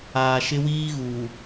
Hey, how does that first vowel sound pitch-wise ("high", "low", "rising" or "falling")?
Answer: low